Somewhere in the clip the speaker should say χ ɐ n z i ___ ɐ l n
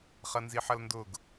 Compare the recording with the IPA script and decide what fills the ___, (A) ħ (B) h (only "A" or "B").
A